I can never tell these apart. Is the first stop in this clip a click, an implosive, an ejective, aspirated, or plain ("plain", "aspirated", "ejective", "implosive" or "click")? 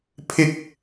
aspirated